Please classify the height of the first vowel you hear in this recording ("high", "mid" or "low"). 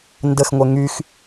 mid